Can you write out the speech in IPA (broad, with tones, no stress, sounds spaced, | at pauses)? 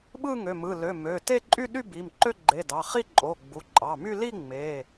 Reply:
ɓ ɯ˥˧ ŋ ø˩˧˩ m ɯ˩˧˩ l ø˩˧˩ m ø˩˧˩ t e˥˧ ǃʼ y˥˧ ɗ y˥˧ b i˩˧˩ m ǃ ø˥˧ ɡ͡ǃ e˩˧˩ d ɑ˩˧˩ χ i˥˧ ǃʼ o˩˧˩ ɡ͡b u˩˧˩ ǃʼ ɑ˩˧˩ m y˥˧ l i˥˧ ŋ͡m e˩˧˩